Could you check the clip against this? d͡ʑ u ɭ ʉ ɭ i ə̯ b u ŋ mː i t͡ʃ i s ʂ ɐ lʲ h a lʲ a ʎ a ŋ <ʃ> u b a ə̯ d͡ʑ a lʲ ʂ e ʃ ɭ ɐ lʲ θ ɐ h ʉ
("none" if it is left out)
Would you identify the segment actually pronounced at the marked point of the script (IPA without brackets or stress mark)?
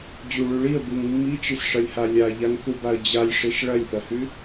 θ